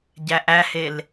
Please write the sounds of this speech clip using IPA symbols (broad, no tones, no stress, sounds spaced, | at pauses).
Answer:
ɟ æ ʔ æ h e l